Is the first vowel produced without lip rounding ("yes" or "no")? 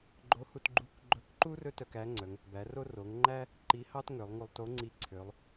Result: no